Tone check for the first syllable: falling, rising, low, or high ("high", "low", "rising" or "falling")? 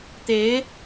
rising